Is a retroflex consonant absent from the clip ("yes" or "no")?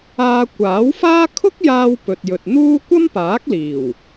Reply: yes